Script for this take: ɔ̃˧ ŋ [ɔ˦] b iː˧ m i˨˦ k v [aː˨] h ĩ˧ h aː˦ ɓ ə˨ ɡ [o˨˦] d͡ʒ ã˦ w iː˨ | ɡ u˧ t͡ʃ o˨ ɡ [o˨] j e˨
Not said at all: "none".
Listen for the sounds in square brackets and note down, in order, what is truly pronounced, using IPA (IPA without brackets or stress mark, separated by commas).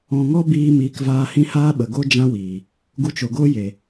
ɔ˦, aː˧, o˦, o˦